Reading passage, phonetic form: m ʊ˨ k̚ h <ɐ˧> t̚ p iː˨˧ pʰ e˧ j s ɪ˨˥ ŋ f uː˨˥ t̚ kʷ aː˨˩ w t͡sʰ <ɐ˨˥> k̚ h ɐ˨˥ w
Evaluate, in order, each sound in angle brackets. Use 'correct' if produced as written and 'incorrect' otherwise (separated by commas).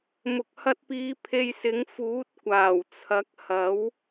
correct, correct